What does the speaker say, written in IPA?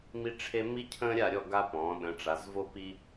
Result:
m i˦ ʈ͡ʂʰ e˦ m i˦ cʰ ə̃ː˦ ɾʲ a˥˨ ɾʲ ɔ˥˨ ɡ a˦ p ɔ̃˩˧ ɗ ə̃˩˧ ʈ͡ʂ a˩˧ z v o˦ p i˦

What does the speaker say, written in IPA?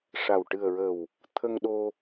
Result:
ʂ a˨˩ w ʈ ɨ˨˩ ə̯ ɹ əː˨˩ w | t̪ʰ ə˧ ŋ ɗ o˧

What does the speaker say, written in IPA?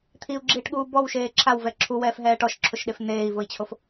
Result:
t̪ʰ i u̯ ɡ͡ǁ iː ʈ ɠ uː b ɔ w ʃ eː ǁʰ a w v ɛ ǁʰ u w ɛː f ɦ ɛː ʈ ɔ ʃ ǁʰ ʊ ʃ ɗ e f n̪ eː i̯ v ʊ i̯ t͡ɕʰ o f

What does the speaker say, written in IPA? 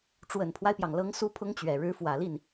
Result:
ʈ͡ʂ w ə˨˩ n pʰ w a˦ ɪ̯ p j ɑ˩ ŋ l ɤ˧˥ ŋ s u˥ pʰ ʊ˥ ŋ t͡ɕ ɥ ɛ˨˩ ɻ ɻ̩˧˥ f w ä˨˩ l i˥˩ n

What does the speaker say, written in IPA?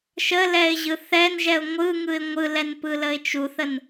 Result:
ʃ ə l ɛ ɪ̯ ʑ ɯ θ ɛ n ʒ ɛ ʊ̯ ŋʷ ɯ ŋ ɯ ɪ̯ ŋʷ ɯ l ɛ n p ɯ l ə ɪ̯ t͡ʃ u θ ə n

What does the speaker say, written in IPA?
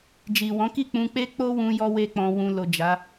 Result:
d͡ʒ i˨ w ɔ̃˨˦ k i˦˨ k͡p ũ˧ k͡p e˦ k͡p o˦ w ũ˧ j ɔ˦ w e˦ k͡p ɔ̃˧ w ũ˧ l o˨ d͡ʒ a˨˦

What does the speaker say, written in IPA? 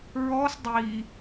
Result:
ɹ ɔ s dˤ i

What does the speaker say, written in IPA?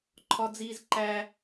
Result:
ǃʰ ɒ˦ d͡z iː˦ z ǃ æ˦

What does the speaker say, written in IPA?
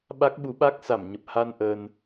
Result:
ɓ a˦˥ k̚ ɓ u˨˦ ɓ a˦˥ k̚ s a˧˩ m ɲ ə˨˩ p̚ h a˧ n ʔ əː˧ n

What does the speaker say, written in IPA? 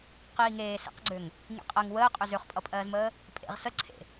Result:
q iː ŋ eː s ḛ q ɡ͡ǀ ø ŋ | ŋ ḭ qʼ ɜ ŋ w əː qʼ ø z ø χ pʼ ʌ pʼ ɜː z m əː | pʼ ḛ ʁ s ə ǀʰ ḛ

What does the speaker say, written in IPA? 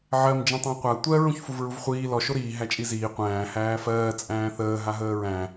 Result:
ʕ ɜ m d͡ʒ ĩ tˤ æ̃ qʷ a tʷ ɜ ɹ ũ ç f u v ɹ u v χʷ iː l ɔ ʃ o ɾ iː ɦ æ t͡ʃʼ i z iː qʷ æ̃ː h æː f ɜː t͡sʼ æ̃ː θ əː ɦ a ɦ əː ɹ æ̃

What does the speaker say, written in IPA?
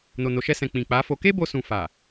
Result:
n o˨ n o˨ ʃ ɛ˧ s ɛ̃˨ k͡p ĩ˨ k͡p a˨˦ f o˧ k e˦ b o˧ s ũ˨ f a˨

